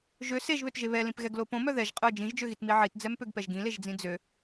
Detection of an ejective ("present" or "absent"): present